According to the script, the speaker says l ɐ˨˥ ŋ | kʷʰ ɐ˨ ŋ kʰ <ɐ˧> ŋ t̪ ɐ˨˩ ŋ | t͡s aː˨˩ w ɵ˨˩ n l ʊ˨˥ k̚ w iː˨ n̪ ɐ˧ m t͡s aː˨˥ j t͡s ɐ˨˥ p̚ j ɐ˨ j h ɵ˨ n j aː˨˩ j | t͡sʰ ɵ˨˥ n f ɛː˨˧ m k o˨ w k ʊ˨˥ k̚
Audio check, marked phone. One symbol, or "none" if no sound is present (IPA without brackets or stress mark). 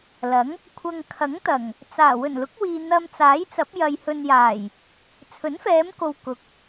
ɐ˨˥